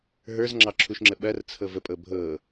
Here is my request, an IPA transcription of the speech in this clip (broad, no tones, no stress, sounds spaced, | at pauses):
ɦ ə˞ z ŋ͡ǁ ɑ ǁʰ u ʃ ŋ͡ǁ ə ɓ ɐ r t͡sʰ ɤ v ə pʼ ɤ bʱ ɤ